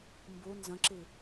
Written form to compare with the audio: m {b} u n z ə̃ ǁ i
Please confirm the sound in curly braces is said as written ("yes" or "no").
yes